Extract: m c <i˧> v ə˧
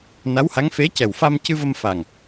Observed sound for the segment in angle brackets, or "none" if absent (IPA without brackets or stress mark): ɨ˧